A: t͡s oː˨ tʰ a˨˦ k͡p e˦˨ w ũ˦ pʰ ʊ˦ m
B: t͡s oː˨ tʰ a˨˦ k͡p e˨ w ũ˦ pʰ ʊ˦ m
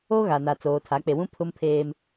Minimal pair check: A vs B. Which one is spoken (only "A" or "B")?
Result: B